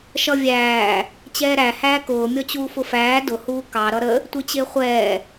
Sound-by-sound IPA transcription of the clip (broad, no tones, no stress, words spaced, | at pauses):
ʃʌvʲæː | t͡ɕɛːɾæ hæːkʊː mʲɔt͡ɕuːfʊfæː dʊ huːkɑ ɾʌɾə | tʷit͡ɕɪːχʷɛː